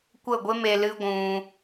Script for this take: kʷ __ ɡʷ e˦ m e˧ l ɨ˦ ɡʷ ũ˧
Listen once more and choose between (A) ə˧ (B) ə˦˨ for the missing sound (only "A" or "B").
B